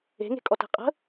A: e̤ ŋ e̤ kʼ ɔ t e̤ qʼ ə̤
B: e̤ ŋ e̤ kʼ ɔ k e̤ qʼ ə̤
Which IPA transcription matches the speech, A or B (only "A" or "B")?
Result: A